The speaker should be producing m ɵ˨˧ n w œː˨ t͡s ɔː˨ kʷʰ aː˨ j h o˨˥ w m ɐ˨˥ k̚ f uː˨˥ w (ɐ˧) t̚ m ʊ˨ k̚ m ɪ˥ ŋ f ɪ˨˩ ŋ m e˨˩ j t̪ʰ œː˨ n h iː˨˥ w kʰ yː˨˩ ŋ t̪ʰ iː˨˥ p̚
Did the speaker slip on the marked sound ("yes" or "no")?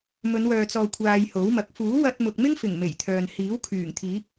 no